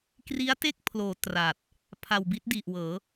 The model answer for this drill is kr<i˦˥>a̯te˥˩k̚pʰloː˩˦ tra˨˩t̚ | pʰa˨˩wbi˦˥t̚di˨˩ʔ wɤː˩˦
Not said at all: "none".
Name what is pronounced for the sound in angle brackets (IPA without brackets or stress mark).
i˦˥